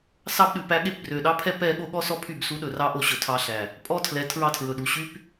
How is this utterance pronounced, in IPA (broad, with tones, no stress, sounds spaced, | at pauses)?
s ɑ˦ b ɗ ʉ˨ p æ˦ ɠ e˦ p b r ø˨ ɗ ɑ˦ pʰ ɛ˦ p ɛ˦ ɠ o˦ ɠ ɔ˦ s ɔ˦ pʰ y˦˨ b s u˦ ɗ ɵ˨ r ɑ˦ ʔ o˨ ɕ ɵ˨ tʰ ɑ˦ ɬ æ˨ | pʼ ɔ˦ tʰ l ɛ˨ tʰ ɹ ɑ˦ tʰ ɹ ɵ˨ ɗ u˨ ɕ y˦ p